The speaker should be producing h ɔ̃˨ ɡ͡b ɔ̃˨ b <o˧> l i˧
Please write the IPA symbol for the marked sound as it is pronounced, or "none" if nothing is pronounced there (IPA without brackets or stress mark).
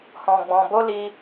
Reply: o˧